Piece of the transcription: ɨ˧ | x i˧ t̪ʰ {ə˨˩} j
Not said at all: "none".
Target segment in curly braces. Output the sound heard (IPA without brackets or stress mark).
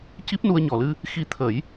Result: ə˨˩˦